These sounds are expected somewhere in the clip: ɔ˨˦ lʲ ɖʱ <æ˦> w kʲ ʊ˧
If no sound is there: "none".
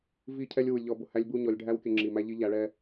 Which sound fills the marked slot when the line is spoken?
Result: æ˦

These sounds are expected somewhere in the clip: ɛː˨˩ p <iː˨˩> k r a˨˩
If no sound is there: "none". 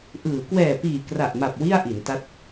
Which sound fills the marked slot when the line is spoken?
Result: iː˨˩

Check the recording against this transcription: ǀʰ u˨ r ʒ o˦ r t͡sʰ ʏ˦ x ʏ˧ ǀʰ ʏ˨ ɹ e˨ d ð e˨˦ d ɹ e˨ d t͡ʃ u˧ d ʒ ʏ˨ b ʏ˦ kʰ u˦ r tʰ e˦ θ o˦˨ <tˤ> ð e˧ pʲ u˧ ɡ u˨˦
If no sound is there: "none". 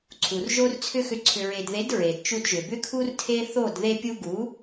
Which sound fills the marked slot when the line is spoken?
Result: d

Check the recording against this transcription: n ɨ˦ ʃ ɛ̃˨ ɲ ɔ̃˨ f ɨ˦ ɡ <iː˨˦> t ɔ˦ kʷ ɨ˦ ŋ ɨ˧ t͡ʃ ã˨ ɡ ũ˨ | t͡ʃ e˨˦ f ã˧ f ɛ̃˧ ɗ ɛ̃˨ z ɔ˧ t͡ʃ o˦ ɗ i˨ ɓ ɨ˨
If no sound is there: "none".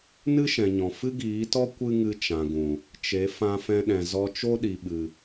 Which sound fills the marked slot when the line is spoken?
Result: iː˨˦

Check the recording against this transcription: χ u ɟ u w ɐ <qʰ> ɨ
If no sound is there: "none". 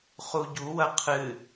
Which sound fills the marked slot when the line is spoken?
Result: qʰ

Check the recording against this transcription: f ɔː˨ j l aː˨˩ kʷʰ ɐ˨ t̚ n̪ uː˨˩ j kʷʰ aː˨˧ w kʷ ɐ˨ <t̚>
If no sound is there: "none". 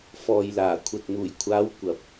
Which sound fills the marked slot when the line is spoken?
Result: p̚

